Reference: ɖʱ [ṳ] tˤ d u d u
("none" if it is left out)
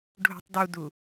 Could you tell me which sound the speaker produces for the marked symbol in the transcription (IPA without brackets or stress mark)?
ṳ